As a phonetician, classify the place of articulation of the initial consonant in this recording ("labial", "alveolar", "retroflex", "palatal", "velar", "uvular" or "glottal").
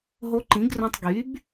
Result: glottal